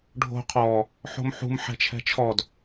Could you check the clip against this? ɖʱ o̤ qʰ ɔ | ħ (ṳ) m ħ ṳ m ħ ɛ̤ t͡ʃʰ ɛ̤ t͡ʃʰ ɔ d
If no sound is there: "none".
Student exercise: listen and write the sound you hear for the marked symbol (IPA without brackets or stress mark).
o̤